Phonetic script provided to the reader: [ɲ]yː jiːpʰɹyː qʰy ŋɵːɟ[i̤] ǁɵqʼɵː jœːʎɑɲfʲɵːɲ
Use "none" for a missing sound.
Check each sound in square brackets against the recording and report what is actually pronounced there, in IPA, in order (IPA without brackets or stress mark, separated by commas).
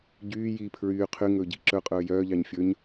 ɟ, i̤